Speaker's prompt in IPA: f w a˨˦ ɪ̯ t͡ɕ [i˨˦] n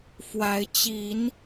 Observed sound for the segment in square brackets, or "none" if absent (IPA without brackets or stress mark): i˨˦